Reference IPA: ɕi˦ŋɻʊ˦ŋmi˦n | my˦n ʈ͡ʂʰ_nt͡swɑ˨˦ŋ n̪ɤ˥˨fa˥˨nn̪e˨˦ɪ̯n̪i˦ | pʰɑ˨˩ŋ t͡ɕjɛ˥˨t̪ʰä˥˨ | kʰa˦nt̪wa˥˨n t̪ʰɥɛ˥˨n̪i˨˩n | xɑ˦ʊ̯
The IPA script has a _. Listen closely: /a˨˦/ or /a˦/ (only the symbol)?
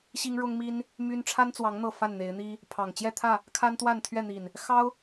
a˦